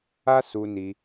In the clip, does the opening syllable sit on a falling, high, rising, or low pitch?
high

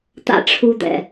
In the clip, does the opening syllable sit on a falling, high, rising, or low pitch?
high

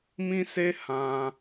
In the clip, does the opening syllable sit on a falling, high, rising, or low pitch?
high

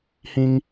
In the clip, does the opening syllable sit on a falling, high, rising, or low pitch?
high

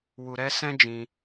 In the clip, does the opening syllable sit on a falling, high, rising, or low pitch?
low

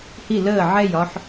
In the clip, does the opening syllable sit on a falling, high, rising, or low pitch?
falling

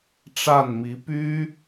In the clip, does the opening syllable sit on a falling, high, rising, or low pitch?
falling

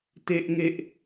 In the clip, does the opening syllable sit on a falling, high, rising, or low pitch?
high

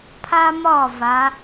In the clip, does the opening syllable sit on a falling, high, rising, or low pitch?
high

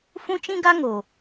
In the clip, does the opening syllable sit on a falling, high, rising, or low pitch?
high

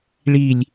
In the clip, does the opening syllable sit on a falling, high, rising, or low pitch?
falling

